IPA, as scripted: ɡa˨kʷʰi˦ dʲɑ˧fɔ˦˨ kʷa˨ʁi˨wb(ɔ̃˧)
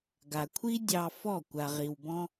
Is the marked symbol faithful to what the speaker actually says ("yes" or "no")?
yes